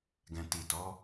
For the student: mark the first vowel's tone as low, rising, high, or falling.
low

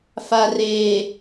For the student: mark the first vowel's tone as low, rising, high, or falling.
low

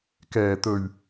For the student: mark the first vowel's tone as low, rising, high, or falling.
low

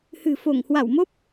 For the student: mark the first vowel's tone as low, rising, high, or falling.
low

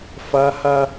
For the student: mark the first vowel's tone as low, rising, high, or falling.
high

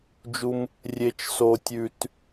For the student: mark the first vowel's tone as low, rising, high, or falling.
high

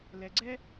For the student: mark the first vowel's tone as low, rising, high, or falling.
low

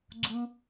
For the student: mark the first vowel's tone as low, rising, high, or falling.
low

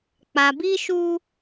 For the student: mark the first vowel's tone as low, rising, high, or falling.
low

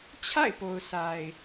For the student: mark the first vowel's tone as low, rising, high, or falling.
falling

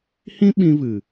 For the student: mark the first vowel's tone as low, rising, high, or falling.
high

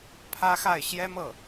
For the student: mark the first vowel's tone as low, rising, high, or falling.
high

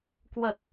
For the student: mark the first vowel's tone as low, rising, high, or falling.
low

